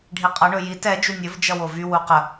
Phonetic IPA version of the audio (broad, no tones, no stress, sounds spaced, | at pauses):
ɖʱ i qʼ ʌ ɳ ɵ j i t ɛ d͡ʒ u nʲ ɵ v d͡ʒ ʌ w o v y w u q ə